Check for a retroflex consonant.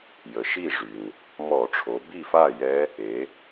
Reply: present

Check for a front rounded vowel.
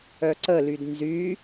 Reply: present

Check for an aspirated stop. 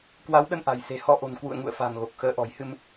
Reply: absent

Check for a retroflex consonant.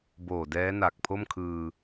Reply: absent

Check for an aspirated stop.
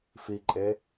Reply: absent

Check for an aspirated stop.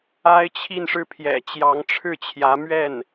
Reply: present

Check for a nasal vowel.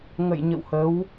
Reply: absent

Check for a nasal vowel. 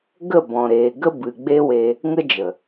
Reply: present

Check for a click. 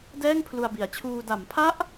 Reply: absent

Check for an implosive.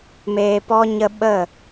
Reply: present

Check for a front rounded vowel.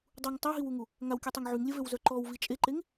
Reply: present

